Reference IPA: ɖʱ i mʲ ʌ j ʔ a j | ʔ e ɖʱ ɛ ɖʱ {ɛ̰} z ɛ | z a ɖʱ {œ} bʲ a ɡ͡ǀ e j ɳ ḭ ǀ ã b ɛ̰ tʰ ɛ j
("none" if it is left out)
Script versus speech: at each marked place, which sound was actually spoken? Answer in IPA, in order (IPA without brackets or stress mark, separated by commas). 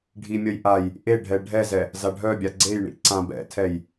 ɛ, œ